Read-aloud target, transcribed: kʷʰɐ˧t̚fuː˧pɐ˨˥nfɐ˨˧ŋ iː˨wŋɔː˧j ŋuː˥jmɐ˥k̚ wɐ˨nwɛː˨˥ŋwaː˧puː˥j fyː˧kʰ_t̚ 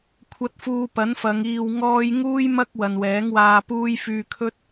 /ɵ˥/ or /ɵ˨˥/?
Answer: ɵ˥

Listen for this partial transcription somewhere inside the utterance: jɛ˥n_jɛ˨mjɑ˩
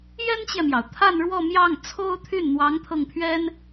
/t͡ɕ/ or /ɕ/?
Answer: t͡ɕ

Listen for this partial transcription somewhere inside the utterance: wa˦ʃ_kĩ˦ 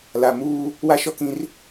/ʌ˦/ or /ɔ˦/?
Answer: ɔ˦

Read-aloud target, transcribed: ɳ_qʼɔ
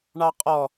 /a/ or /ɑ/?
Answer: ɑ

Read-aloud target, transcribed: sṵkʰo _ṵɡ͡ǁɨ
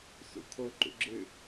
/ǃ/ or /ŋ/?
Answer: ǃ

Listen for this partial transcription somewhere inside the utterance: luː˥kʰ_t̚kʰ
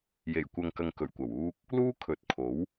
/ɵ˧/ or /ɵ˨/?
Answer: ɵ˨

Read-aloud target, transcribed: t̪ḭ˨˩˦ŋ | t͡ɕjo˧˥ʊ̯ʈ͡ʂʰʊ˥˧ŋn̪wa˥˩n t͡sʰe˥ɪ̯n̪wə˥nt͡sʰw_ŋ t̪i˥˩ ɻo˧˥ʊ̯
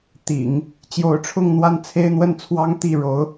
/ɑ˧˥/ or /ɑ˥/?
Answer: ɑ˥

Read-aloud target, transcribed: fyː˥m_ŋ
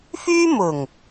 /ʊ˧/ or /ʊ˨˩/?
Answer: ʊ˨˩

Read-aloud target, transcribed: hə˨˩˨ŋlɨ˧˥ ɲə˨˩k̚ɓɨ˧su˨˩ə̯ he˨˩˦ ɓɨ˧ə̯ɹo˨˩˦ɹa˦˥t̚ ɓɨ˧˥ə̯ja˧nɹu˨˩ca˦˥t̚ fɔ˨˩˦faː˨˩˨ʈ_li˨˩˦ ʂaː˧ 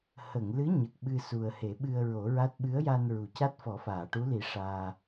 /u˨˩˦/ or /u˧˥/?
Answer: u˧˥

